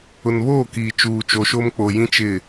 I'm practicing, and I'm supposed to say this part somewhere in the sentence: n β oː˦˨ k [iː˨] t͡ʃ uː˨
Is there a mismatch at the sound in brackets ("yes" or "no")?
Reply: no